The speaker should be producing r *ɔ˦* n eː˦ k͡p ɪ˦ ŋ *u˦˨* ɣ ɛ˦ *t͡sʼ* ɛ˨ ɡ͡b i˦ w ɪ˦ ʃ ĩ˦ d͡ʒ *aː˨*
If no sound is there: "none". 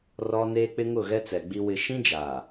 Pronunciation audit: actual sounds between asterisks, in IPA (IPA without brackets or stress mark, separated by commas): ɔ˦, ʊ˦˨, t͡s, aː˨